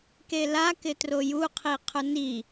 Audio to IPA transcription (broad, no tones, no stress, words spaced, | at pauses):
kela kɪtroju qʰiqʰʊni